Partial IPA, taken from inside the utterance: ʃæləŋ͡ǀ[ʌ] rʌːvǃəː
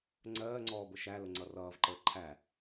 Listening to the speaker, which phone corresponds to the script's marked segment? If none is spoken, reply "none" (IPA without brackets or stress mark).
ʌ